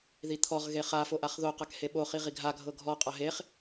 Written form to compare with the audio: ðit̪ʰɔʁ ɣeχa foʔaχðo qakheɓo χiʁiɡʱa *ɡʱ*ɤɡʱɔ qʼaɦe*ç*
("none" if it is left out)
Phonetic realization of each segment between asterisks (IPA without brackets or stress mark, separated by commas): ɡʱ, χ